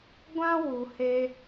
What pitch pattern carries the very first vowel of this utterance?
high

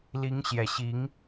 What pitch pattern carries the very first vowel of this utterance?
rising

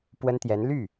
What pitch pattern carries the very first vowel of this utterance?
high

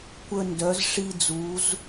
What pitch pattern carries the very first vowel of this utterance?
high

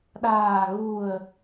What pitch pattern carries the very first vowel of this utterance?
low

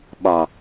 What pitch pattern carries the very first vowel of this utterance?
low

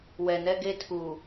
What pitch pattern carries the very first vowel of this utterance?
low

